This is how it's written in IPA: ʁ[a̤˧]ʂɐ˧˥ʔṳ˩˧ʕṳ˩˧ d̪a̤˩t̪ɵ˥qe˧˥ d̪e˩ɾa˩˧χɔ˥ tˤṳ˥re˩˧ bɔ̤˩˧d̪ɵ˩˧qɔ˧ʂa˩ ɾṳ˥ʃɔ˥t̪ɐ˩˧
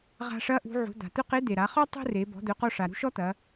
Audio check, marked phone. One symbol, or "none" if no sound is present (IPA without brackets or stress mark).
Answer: a̤˧